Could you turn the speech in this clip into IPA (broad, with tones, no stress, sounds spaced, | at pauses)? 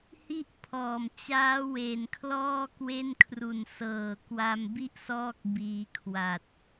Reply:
h i˥˩ ʔ pʰ ɔː˨˩ m t͡ɕ aː˦˥ w e˨˩ n kʰ l ɔː˥˩ k w e˥˩ n kʰ r u˨˩ n s ɤː˨˩ k w a˧ m b i˥˩ ʔ s ɔː˦˥ k̚ b iː˧ kʰ w a˨˩ t̚